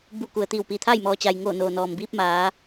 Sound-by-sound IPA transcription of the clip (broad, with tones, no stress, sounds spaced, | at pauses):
b u˧˩ k u˩ ə̯ t̪ iː˧˩ w p iː˧˩ t̪ʰ aː˥˨ j m ɔː˩ t͡ɕ a˩ j ŋ oː˧˩ n oː˩ n ɔː˩ m b iː˧ p̚ m aː˩˧